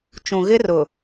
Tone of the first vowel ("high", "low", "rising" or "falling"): low